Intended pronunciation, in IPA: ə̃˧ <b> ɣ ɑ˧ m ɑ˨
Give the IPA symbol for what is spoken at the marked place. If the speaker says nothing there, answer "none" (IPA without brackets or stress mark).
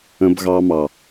b